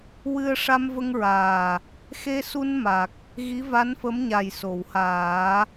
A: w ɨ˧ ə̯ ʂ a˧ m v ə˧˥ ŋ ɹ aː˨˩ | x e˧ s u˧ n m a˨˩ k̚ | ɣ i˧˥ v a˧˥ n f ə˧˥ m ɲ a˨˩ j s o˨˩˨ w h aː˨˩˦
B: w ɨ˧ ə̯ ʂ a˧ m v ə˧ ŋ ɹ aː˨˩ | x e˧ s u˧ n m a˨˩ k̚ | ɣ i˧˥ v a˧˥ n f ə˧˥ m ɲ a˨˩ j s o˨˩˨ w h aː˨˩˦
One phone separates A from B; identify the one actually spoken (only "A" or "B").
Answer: B